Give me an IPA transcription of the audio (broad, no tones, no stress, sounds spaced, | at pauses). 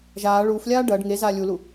ʒ aː ɭ uː f lʲ aː ɖ ɐː ɖ ŋ e z aː lʲ u l u